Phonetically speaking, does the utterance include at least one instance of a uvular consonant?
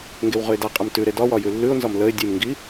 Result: yes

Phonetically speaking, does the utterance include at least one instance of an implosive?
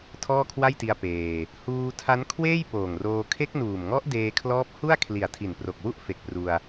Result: no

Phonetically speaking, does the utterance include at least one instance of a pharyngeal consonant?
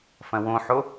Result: yes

